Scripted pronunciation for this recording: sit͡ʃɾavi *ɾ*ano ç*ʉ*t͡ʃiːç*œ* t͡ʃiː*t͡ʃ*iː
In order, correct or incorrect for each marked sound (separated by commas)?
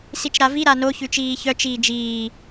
correct, correct, correct, incorrect